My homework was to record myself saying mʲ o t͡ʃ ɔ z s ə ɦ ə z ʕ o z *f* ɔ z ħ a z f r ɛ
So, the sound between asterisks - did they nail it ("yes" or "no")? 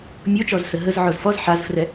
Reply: yes